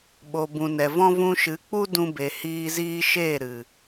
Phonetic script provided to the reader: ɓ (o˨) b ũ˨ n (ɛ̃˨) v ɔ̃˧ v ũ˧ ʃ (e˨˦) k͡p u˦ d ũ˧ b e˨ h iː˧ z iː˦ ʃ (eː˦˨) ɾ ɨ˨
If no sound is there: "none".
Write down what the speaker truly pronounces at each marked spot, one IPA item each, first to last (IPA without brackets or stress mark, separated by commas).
o˨, ɛ˨, ɨ˨˦, eː˦˨